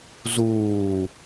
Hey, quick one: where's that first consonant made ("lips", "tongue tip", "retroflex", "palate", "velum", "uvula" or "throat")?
tongue tip